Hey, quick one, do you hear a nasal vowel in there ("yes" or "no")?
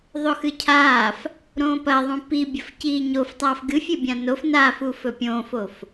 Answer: yes